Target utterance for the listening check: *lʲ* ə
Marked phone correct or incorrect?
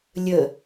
correct